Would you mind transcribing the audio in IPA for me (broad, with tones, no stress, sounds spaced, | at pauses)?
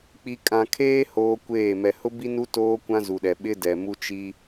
k͡p i˨ kʼ ã˨ kʰ eː˦ h oː˦ kʷ eː˦˨ m ɛ˨ h ʊ˦ b i˦ n u˦ t oː˦ kʷ ã˦ z u˨ ɗ ɛ˨ ɓ ɪ˦ d ɛ˨ m u˦ t͡ʃ i˦